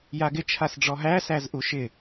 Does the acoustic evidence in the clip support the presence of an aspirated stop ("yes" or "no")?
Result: yes